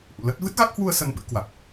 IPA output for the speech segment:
ʔ ṵ˧˨ l ə˦˥ t̚ v ɨ˦˥ t̚ ɣ a˦˥ k̚ h w u˧ ə̯ s ə˧ n ɓ ɨ̰˧˥ k w a˨˩ k̚

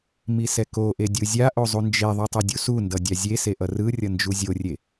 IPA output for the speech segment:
m i s ɛ k o ʔ e dʲ ɯ zʲ a ʔ o zˤ u n d͡ʒ e ðˤ u tˤ ɛ dʲ u s u n d ʌ dʲ a zʲ e s e ʔ ʌ r ɯ rʲ ʌ n d͡ʒ u zʲ o rʲ e

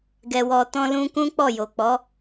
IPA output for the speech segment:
ɡ ɛ˧ w ɔ˧ t ɔ̃˦ l ũ˦ k ũ˦ k͡p ɔ˦˨ j o˨ k͡p ɔ˨˦

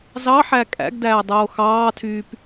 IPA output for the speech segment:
z ɑ ħ æ kʼ æ̰ ɡ d æː dˤ oː x ɑː tʰ yː p

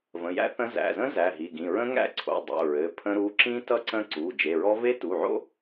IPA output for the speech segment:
v ə̃˩˧˩ j æ̰˦˥ θ ə̃˦˥ z æ̰˩˧˩ z ə̃˦˥ z æ˩˧˩ ɦ i˩˧˩ ɡ ĩ˩˧˩ ɹ ə̃˦˥ ŋ æ̰˦˥ ǀʰ o̰˩˧˩ dˤ o̰˩˧˩ ɹ ɘ˩˧˩ pʰ ə̃˦˥ ɾ u˩˧˩ ǁ ĩ˦˥ t ʌ˦˥ ǀ ə̃˦˥ ǀ u˩˧˩ d͡ʒ e˩˧˩ ɹ ɔ˦˥ v e˦˥ t u˩˧˩ ʕ o̰˦˥

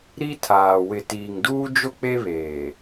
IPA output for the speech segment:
ɾ i˦ tʰ aː˨ w ɪ˨ t iː˨ ŋ d uː˦ d͡ʒ ʊ˦ k͡p e˦ β eː˨

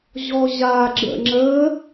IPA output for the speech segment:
ʑ ɔ ʑ a ɡ͡ǁ ə̰ ŋ͡ǁ ə

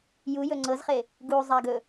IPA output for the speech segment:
j u j ɵ ŋ͡ǀ ɤ z χ e | ɡ u zˤ a ɡ ɵ

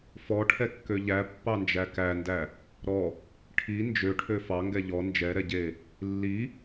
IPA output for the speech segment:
f ɔ ʈʰ ɛ kː ø ʎ æ pː ɑ n d͡ʒ æ k æ n d æ | ɾ ɔ | ʈʰ i n d͡ʒ ø ʈʰ ø f ɑ ŋ ɡ ɛ ʎ ɔ n d͡ʒ ɛ ɾ ɛ ɟ e | lː i

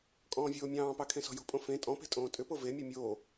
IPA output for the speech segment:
kʼ ɔ̃ː vʲ oː mʲ ɑ̃ː p ɑ kʰ ẽ s ɔ̤ j o̤ pʼ õ f ẽ tʼ ɔ̃ p e̤ tʼ õː tʼ ʏ p o v e mʲ o mʲ oː

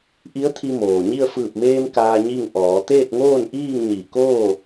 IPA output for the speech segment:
ʔ i˧˥ ə̯ t̪ʰ i˧ m oː˩ ɲ i˥˨ ə̯ f ɯː˧˩ p̚ m eː˧ m k aː˧ ɲ i˥˨ ŋ ʔ ɔː˩˧ t̪ eː˥˨ t̚ ŋ oː˥˨ n ʔ iː˥˨ ŋ ɲ i˧˩ k oː˥˨

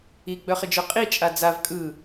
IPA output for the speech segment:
i ɡ͡b œ χ ɪ d͡ʒ œ qʼ i t͡ʃʼ a d͡z a v kʼ ɯ

